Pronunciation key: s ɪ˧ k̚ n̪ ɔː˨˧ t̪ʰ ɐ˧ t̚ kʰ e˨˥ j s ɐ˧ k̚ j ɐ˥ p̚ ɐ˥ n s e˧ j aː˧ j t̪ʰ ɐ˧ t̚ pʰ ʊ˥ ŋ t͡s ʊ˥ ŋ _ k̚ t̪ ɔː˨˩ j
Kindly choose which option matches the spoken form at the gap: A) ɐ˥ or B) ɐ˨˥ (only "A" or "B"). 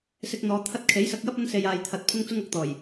B